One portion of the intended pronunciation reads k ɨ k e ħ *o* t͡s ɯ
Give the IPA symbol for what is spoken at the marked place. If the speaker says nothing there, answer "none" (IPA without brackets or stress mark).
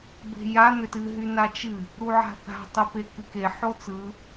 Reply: o